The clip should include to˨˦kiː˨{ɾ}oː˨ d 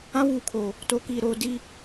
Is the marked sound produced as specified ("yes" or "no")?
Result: yes